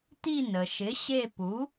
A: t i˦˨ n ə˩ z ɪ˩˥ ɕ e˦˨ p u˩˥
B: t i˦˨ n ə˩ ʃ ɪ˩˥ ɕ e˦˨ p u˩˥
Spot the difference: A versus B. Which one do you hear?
B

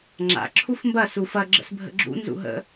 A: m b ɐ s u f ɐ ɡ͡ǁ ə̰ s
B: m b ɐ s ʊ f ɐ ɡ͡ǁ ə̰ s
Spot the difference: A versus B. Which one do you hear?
A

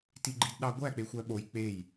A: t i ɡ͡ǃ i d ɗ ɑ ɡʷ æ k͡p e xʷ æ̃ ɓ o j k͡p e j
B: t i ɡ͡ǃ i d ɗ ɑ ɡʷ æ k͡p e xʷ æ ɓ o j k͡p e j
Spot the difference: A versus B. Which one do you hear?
B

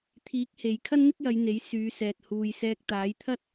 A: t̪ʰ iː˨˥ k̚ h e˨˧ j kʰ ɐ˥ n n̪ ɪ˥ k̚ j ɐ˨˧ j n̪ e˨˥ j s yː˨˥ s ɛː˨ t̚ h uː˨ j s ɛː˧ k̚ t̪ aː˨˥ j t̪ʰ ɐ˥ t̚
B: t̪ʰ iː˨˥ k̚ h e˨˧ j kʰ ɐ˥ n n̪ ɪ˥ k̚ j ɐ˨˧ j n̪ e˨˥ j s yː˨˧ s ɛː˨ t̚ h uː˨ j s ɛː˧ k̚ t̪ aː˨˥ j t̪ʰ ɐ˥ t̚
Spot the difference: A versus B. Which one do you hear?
B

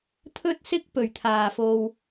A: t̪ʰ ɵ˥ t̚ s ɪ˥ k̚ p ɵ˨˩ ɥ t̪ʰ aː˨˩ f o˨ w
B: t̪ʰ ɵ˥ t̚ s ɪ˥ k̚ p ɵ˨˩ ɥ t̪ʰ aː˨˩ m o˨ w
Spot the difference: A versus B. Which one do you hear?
A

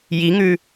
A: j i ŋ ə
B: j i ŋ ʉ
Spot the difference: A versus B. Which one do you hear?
B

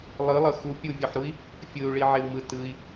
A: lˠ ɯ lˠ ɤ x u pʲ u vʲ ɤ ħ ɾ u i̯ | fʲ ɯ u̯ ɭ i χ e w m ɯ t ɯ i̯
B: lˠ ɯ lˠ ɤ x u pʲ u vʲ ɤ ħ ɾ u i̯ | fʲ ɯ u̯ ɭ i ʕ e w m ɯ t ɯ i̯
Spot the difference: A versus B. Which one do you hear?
B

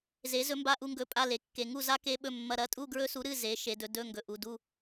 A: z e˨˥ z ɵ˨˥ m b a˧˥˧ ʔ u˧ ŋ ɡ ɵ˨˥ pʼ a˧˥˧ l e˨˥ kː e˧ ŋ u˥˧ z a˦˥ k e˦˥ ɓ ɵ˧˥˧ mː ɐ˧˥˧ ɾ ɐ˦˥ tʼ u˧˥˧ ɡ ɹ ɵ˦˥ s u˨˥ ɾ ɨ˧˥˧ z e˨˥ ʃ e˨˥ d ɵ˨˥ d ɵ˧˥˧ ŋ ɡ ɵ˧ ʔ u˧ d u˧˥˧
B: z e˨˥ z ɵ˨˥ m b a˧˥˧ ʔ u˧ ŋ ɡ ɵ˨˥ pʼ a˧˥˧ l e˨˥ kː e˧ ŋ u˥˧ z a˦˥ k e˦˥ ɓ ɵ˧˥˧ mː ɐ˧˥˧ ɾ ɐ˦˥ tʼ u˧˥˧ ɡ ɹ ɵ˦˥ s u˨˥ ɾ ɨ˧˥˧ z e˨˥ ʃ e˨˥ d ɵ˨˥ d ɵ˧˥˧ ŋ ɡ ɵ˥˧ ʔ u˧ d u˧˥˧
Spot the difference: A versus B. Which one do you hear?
A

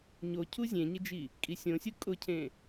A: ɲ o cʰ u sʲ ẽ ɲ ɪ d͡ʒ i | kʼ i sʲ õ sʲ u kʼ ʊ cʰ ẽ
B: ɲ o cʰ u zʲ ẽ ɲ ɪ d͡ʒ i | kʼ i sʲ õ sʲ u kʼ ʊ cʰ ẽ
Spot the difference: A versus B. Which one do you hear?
B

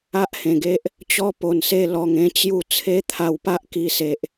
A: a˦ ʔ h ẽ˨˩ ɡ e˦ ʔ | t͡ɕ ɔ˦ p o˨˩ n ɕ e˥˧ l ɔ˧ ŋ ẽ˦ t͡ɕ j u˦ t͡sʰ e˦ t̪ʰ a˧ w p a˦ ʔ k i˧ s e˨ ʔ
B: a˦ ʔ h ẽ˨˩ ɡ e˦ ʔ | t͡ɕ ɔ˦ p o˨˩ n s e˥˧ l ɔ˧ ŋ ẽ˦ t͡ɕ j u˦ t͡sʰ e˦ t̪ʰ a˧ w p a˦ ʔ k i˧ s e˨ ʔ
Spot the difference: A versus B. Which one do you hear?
B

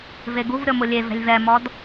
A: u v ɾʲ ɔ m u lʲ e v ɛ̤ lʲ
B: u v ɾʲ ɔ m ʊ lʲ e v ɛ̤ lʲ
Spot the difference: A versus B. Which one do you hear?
B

